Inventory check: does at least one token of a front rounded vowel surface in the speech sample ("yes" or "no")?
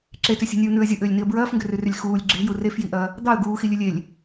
yes